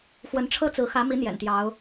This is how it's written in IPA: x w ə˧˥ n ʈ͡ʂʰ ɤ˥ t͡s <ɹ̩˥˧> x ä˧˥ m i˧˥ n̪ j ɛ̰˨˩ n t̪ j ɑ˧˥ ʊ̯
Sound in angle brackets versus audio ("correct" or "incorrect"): incorrect